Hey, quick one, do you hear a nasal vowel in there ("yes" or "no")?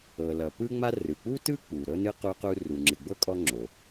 no